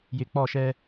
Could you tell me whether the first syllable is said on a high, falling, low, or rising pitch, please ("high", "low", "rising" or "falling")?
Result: low